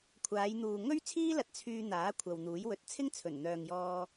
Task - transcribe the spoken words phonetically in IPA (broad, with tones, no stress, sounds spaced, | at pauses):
kʷʰ aː˨˧ j n̪ uː˨ ŋ ɵ˥ ɥ t͡sʰ iː˥ l ɐ˧ t̚ t͡sʰ yː˧ n̪ aː˨˥ kʷʰ ɐ˨ w n̪ uː˨˥ j w ɵ˧ t̚ t͡sʰ ɪ˥ ŋ t͡sʰ ɵ˨˩ n n̪ œː˨ ŋ j ɔː˧